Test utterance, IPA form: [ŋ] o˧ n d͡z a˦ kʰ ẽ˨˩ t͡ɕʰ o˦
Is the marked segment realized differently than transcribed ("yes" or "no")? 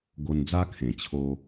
yes